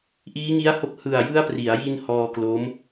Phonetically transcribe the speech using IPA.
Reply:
ʔ iː˦˥ ŋ i˦˥ a̯ h o˦˥ k̚ h ɯ˨˩ a̯ j ɯ˦˥ a̯ p r i˩˦ a̯ j i˧ n h ɔː˧ k l o˦˥ m

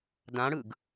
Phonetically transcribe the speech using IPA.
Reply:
d ã ɽ ɯ ɡ

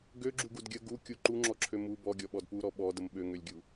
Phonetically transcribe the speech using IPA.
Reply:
ɡ ø ɡ͡ǁ u ɡ u d ɡʲ ə ɡ u kʲ u ǃ u ŋ͡ǁ ɔ ǁʰ ø m u b ɔ ɡʲ ɔ ɓ ɔ d p u ɾ ɔ ɓ ɔ d ə m ɓ ø ŋ ø lʲ ɡʲ u

